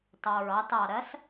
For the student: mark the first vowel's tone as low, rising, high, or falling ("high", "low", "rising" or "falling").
low